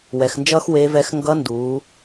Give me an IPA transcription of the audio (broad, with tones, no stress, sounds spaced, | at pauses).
w ɛ˩˧ x n d͡ʒ ʌː˥ x w eː˧˥ v ɛ˧˥ x ŋ ɡ ʌː˧˥ n d uː˩˧